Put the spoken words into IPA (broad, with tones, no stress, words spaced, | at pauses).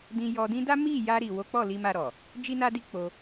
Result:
dĩ˧jɔ˧dĩ˦ da˦mi˦˨ja˧ ɾi˨ wo˨˦k͡pɔ˦˨li˧ ma˧ɾɔ˨ | d͡ʒi˦na˦di˦k͡po˧